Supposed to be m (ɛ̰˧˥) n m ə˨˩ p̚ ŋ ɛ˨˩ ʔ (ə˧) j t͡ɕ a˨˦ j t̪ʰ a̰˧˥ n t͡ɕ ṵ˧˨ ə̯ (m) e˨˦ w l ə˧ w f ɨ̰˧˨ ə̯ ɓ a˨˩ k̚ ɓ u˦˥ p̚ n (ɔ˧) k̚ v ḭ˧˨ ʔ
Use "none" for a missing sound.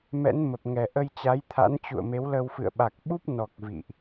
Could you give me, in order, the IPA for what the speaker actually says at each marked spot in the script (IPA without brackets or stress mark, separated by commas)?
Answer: ɛ̰˧˥, ə˧, m, ɔ˨˩